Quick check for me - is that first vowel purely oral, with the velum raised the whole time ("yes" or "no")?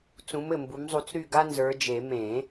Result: no